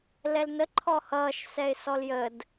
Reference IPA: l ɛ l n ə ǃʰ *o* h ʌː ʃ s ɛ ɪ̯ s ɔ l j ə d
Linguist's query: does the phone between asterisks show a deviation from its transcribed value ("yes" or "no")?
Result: yes